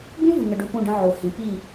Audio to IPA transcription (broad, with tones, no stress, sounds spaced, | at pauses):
b ũ˦ v ɯ˨ ŋ ə˨ ɖ ʊ˦ p ũ˦˨ ɖ ə̃˦ ʕ o˨ h ĩ˨ p i˦˨